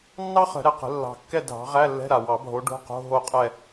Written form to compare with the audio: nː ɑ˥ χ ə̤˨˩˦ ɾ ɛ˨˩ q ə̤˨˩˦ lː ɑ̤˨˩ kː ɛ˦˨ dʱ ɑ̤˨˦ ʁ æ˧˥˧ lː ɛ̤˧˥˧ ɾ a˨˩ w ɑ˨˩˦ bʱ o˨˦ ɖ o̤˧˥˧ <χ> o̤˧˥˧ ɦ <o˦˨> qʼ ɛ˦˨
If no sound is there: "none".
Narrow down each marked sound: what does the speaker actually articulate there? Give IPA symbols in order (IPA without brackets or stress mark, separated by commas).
q, o˦˨